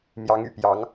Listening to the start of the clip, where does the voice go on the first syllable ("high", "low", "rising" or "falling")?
rising